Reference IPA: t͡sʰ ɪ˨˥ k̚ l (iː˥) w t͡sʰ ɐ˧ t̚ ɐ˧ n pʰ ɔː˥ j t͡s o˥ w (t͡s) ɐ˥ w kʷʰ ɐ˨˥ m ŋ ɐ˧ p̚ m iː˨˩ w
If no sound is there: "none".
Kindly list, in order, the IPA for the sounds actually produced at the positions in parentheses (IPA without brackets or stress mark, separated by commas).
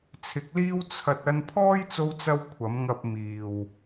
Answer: iː˥, t͡s